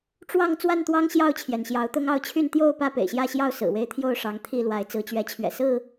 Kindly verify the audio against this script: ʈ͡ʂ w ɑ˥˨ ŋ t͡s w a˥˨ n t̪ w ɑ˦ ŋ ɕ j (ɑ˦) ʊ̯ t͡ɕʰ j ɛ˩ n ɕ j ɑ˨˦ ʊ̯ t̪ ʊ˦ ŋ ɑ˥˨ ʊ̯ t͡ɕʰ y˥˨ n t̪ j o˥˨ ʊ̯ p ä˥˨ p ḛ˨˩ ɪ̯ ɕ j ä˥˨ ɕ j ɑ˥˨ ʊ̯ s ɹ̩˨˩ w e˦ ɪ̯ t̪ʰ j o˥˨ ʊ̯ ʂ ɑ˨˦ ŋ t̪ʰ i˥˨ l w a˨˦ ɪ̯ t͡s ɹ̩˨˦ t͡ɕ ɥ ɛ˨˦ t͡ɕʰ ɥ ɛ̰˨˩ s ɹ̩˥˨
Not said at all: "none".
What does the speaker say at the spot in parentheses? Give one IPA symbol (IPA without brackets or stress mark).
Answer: ɑ˥˨